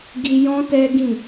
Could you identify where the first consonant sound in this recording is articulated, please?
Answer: velar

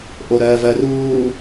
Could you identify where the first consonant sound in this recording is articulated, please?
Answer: glottal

